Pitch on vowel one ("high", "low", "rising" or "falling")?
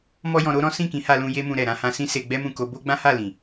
high